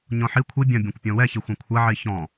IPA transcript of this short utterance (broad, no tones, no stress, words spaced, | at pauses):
ɲɔ̃ħi kʷʰi bʲɐ̃ bʲɔ̃kʷpʲɔ̃wɛçi xʷɐ̃kʷʰɐ ʕiçɔ̃